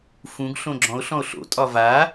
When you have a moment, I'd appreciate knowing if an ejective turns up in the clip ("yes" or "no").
yes